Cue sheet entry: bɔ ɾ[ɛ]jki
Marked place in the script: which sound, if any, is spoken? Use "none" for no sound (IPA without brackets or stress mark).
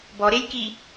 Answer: e